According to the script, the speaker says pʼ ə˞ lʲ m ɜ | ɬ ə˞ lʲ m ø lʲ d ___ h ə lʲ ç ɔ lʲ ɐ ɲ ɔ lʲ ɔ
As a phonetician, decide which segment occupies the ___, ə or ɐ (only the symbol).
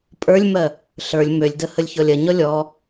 ə